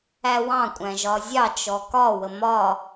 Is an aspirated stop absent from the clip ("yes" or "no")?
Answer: yes